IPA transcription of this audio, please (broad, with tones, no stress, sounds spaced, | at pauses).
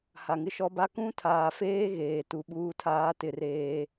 h a˨ ŋ ɪ˦ ʃ ɔ˦ b a˦ k ũ˦ tʰ aː˨ f eː˦ ɣ eː˨ t u˨ ɓ uː˦ tʰ aː˦ t ɪ˦ r eː˦